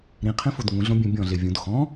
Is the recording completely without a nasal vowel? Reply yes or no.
no